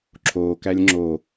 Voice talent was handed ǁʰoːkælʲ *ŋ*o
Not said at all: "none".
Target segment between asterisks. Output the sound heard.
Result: ŋ͡ǁ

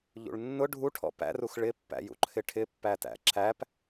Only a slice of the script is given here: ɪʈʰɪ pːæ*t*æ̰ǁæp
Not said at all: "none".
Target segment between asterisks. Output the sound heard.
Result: t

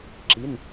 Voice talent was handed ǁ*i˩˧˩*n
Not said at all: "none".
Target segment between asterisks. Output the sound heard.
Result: i˩˧˩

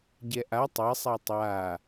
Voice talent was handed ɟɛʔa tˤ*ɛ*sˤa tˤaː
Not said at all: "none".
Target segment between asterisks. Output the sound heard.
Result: ɛ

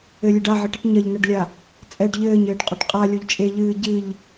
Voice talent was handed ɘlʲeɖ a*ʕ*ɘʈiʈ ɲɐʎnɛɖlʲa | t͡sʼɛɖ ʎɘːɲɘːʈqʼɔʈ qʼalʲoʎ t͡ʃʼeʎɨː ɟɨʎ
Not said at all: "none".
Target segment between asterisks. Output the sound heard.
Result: ʕ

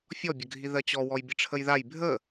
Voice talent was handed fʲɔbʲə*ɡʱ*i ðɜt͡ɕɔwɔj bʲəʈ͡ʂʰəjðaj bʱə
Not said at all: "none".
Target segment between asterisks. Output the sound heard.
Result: ɡʱ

